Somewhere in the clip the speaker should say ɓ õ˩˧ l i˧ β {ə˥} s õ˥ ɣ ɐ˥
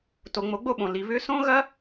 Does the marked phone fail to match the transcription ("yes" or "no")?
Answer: yes